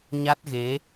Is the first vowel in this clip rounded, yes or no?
no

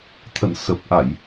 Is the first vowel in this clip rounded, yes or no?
no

